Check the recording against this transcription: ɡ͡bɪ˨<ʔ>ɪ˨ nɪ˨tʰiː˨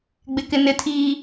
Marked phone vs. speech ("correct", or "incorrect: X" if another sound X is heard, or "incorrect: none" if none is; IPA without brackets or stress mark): incorrect: k